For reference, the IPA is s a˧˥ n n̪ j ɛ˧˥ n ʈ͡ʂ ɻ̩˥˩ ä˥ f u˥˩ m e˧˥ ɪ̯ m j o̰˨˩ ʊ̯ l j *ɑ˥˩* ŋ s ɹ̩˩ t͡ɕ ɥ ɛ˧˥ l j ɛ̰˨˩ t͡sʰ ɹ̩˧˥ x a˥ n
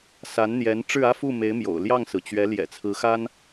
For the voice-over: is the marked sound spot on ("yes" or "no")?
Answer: yes